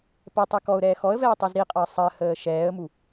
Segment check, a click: absent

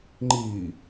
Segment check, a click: present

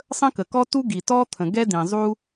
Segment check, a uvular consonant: absent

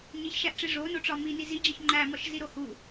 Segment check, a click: present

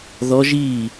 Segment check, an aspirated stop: absent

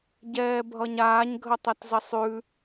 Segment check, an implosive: absent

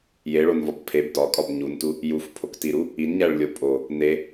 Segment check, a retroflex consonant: present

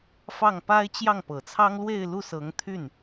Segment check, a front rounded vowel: present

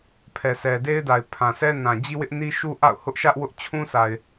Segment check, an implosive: absent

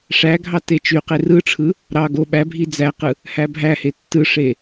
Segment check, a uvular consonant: present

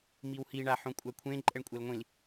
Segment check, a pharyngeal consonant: present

